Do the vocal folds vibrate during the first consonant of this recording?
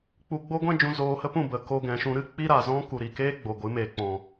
no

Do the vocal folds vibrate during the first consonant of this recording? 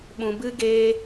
yes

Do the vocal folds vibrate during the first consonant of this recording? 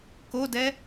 no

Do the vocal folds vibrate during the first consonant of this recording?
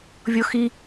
yes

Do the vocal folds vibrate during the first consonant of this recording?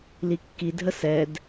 yes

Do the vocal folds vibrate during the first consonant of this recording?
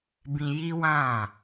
yes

